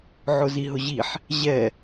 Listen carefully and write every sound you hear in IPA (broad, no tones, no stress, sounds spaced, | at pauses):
ʕ ʊ z i ɦ ʊ ʑ i ħ | ʑ ɛ